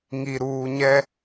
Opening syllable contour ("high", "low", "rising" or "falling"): low